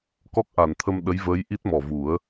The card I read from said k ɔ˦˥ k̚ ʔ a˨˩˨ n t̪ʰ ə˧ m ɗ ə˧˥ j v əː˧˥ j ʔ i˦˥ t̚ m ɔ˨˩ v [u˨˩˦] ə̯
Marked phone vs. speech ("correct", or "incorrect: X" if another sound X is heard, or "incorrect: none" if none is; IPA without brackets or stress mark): correct